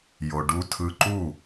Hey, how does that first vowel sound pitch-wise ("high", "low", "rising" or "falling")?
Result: low